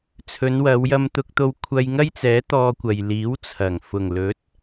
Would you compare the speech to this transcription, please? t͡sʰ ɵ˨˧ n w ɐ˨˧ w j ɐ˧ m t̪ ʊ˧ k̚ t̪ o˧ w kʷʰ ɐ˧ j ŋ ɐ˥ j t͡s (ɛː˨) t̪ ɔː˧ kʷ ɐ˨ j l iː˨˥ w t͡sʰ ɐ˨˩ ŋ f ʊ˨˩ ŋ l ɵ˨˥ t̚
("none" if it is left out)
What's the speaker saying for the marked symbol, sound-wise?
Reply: ɛː˨˥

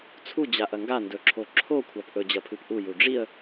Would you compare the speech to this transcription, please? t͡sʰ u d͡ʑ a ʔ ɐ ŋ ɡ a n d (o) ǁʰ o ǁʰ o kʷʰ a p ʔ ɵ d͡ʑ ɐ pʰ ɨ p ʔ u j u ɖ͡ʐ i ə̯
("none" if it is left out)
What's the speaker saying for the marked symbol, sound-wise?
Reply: ɵ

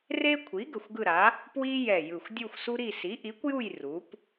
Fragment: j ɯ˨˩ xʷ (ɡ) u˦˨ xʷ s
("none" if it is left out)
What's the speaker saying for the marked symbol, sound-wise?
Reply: dʲ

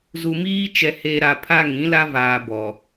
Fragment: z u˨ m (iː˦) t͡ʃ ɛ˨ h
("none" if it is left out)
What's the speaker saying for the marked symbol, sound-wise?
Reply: iː˦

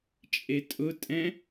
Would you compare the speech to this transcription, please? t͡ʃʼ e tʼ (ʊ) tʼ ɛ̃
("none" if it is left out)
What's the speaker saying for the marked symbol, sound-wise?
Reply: ʊ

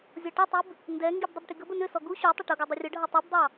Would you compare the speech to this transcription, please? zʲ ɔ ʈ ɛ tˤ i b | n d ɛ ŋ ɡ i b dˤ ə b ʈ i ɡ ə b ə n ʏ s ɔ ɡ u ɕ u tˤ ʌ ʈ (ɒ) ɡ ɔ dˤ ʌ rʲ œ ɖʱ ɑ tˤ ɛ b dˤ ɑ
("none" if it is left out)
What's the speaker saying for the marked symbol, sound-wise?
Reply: ʌ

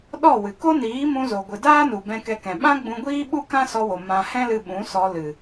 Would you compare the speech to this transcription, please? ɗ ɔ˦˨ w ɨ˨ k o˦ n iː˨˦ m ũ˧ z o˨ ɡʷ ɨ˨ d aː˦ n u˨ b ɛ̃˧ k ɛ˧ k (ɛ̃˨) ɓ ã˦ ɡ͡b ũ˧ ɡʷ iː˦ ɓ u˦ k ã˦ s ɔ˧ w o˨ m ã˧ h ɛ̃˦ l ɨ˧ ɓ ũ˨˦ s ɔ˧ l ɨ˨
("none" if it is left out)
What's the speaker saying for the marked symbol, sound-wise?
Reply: ɛ̃˨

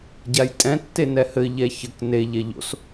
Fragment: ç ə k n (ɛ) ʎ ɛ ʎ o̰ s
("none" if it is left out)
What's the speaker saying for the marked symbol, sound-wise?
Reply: e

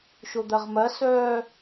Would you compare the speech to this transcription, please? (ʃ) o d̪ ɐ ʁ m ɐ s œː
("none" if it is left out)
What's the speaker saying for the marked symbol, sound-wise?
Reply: ʃ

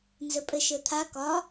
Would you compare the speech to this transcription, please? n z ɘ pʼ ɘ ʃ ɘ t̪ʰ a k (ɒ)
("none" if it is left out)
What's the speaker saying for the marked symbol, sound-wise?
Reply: ɒ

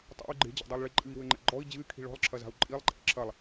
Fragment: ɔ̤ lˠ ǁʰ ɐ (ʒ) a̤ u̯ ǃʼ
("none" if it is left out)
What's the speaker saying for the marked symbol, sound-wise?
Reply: z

